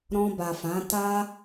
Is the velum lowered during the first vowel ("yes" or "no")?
yes